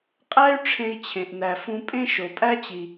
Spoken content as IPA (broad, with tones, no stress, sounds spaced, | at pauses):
qʼ æ˥ y̯ ʈ͡ʂʰ ẽ˧ i̯ t͡ɕʰ ẽ˩ ʔ n æ˩ f ũ˧ pʼ ẽ˥ ʃ o˩ pʼ æ˥ t͡ɕ i˩